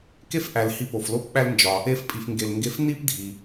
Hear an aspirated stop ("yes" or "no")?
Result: no